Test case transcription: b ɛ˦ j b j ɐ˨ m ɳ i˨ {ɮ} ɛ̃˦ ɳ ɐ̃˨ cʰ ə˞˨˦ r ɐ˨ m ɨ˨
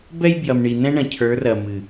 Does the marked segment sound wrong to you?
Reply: yes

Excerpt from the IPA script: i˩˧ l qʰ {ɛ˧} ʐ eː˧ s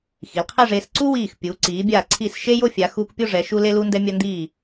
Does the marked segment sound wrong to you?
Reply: yes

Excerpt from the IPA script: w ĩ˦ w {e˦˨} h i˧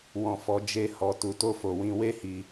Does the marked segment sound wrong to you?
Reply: yes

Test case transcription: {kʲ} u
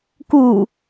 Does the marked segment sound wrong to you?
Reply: yes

